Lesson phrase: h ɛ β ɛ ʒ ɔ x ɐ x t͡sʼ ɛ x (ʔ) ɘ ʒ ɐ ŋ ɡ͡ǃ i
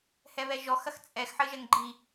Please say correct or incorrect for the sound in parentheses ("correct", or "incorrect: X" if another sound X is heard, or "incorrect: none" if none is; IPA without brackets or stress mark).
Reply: incorrect: ħ